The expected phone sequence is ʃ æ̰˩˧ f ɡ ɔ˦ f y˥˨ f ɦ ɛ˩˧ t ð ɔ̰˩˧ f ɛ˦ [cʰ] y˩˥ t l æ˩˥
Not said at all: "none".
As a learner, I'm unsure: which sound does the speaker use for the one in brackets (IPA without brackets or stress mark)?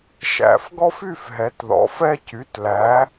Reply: c